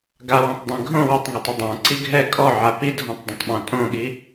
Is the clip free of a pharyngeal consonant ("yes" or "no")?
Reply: no